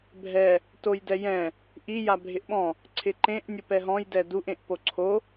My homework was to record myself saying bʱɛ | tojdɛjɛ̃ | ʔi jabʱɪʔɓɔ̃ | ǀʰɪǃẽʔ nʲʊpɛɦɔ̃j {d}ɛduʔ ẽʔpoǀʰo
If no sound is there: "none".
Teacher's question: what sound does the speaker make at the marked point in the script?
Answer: d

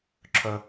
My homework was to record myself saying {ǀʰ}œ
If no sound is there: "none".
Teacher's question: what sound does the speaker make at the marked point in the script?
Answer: ǁʰ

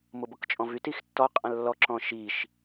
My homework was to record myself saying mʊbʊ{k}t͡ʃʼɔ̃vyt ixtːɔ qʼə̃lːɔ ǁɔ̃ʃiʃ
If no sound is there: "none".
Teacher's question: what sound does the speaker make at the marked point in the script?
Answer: k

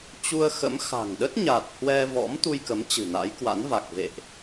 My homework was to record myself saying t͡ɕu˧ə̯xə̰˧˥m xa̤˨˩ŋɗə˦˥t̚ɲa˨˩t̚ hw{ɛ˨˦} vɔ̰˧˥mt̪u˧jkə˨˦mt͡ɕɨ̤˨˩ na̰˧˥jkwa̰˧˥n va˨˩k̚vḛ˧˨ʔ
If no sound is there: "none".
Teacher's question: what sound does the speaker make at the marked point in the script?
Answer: ɛ˧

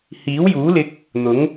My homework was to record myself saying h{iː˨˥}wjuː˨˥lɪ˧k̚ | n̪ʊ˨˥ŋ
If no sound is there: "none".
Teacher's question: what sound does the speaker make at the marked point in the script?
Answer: iː˨˥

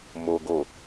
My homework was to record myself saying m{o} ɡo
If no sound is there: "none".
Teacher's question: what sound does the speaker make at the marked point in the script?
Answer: o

